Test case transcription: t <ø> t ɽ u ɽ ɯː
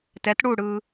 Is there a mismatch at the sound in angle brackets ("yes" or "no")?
yes